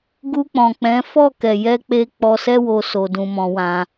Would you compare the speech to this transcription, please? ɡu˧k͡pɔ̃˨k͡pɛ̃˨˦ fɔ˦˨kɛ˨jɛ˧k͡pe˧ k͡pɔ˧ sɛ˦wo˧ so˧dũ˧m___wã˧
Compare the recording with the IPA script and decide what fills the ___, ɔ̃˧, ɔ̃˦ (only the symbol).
ɔ̃˧